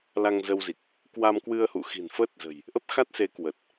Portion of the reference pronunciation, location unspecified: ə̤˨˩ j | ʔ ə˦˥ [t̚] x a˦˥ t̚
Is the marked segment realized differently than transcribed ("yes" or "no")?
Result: yes